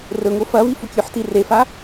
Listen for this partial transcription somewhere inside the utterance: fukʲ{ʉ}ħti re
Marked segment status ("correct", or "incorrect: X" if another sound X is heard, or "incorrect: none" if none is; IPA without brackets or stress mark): correct